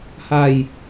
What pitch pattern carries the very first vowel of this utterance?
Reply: falling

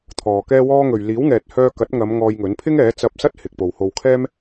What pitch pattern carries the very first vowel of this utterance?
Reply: low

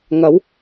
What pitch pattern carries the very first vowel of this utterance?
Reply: rising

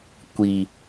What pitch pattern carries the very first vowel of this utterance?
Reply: low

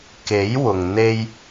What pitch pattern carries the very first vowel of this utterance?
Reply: rising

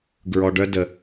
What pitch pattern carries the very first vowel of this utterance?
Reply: low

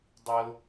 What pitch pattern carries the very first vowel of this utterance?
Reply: high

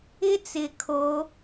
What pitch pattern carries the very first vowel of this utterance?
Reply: high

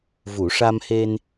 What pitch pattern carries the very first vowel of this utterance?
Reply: low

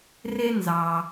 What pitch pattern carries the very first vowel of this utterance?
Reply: high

